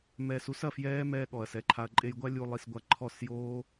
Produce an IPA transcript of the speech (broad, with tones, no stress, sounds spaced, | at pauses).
m ɛː˧ s u˦ s ɐ˨ f j ɛː˦ m ɛː˧ ɠ ɔ˨ ɐ̯ s ɛ˨ ǃʰ a˧ ɐ̯ ǃʼ e˧ j ɡʷ a˦ lʲ u˧ lˠ i˧ s ɡʷ a˧ ǃʰ ɔ˦˨ s j oː˦